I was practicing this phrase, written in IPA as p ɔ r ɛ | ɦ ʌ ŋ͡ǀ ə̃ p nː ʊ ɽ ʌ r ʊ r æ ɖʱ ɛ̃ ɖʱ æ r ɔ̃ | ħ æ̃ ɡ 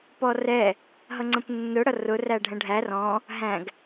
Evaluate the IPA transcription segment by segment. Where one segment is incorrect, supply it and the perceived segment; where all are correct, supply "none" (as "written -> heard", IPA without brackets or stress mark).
ħ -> ɦ